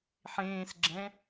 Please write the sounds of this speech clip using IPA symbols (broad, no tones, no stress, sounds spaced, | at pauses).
ħ ẽː s ɡ͡ǁ ɛ̃